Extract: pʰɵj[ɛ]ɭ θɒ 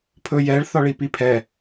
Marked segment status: correct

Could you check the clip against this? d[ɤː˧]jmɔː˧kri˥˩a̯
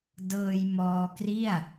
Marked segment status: correct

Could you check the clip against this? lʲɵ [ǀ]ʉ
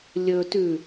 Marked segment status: incorrect: t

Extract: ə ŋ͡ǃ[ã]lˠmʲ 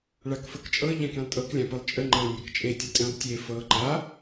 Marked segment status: correct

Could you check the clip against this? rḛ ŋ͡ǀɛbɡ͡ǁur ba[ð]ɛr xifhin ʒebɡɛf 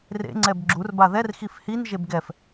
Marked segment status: correct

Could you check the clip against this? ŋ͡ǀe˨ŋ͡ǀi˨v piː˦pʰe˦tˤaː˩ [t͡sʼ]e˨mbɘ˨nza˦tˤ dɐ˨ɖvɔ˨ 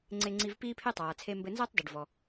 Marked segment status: incorrect: t͡sʰ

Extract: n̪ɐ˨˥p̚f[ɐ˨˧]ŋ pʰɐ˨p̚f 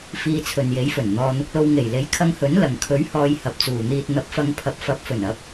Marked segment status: correct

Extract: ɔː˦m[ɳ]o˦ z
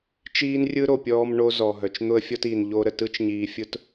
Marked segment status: correct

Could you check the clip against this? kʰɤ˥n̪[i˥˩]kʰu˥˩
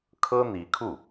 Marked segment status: incorrect: i˧˥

